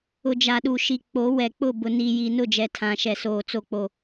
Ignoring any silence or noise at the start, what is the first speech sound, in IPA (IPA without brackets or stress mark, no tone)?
ʊ